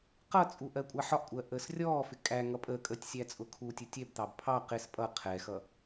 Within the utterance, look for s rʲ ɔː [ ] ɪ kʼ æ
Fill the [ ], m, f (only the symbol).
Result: f